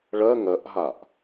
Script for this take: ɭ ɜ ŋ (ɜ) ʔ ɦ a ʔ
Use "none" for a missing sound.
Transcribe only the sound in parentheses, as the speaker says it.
ɜ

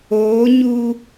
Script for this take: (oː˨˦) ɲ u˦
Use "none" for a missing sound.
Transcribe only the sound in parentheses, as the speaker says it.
oː˨˦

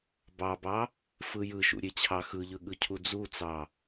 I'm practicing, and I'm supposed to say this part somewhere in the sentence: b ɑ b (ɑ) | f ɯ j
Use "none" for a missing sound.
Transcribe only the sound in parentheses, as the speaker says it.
ɑ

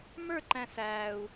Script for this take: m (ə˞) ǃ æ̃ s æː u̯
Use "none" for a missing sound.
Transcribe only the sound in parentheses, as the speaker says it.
ə˞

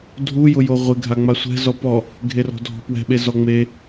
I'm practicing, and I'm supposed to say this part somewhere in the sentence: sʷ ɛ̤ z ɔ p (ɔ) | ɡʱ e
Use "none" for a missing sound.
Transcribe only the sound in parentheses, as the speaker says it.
ɔ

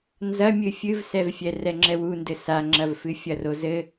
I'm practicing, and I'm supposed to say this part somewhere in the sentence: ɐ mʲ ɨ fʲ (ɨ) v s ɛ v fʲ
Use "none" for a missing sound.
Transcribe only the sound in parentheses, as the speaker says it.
ɨ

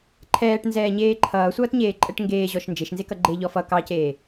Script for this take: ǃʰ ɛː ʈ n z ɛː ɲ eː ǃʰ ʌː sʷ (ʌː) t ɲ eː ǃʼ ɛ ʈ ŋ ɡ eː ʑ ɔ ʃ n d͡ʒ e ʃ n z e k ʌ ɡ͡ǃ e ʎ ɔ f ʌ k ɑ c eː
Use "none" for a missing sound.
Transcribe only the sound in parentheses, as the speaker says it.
ʌː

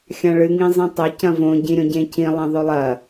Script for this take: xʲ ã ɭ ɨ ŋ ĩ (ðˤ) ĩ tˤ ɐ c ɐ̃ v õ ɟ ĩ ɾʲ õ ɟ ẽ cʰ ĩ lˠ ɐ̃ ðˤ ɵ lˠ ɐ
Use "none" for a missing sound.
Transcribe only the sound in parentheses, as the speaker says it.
zˤ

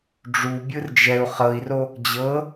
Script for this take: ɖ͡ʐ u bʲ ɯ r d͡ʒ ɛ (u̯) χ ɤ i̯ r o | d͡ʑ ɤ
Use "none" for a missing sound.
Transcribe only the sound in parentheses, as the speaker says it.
u̯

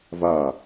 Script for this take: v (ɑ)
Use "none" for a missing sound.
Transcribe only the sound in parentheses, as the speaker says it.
a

